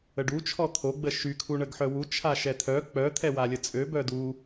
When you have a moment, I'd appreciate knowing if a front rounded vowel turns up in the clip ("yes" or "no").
yes